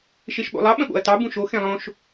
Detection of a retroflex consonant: absent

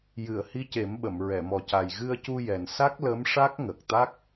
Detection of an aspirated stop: absent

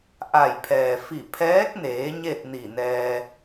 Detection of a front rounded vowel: absent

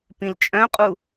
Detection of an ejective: present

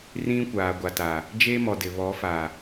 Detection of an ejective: absent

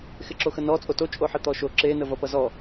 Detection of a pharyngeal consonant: present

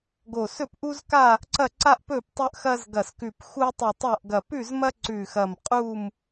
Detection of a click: present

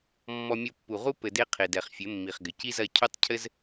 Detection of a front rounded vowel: absent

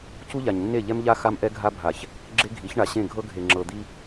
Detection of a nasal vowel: present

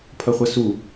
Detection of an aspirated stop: present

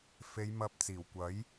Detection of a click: absent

